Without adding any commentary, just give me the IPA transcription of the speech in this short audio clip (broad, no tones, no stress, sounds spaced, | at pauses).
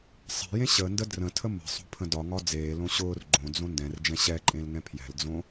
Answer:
sˤ ɛ̤ j ẽ ɕ ə n d ə d r ə̃ tʰ ə m ə̤ sˤ o̤ pʰ ə̃ d ɒ ŋ ɒ d͡z eː l õ ɕ ʊː r ɡ͡ǃ õ d͡z õ n d ɛ̃ r d͡ʒ ɛ̃ ɕ ɛ ǃʼ ẽ l ŋ ɛ̃ pʰ j ɛ̤ l d͡z õ